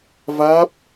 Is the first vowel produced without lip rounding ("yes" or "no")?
yes